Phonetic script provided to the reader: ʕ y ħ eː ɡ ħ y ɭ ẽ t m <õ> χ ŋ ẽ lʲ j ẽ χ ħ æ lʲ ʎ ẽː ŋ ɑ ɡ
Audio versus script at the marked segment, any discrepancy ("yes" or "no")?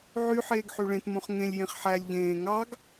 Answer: no